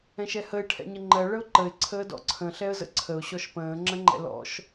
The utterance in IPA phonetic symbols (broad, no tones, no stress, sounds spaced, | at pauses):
ɛ̃ ʃ ɛ h ə ɪ̯ ʈʰ ɛ̰ ɲ ə ŋ͡ǃ ɜ ɭ ə ʊ̯ ǃ ə ɪ̯ ǀʰ əː d ɔ̰ ǀʰ ə̃ ɬ ɛ ə̯ z ə̰ ǀʰ ə ʊ̯ ɕ ɔ ʃ p ə̃ː ŋ͡ǁ ə̃ ŋ͡ǃ ɛ̰ l ɔ̰ ʃ